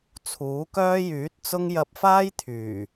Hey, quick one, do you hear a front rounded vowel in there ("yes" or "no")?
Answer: yes